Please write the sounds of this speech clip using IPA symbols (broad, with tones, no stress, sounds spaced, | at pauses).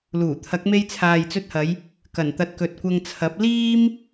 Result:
l uː˨˩ t̪ʰ ɐ˨˥ k̚ m e˧ j t͡sʰ aː˨ j t͡s ɵ˧ t̚ h ɐ˨˧ j | k ɐ˨˩ n t̪ ɐ˨˥ t̚ k ɵ˨ t̚ kʷ ɐ˧ ŋ t͡sʰ ɐ˨˥ p̚ l iː˥ m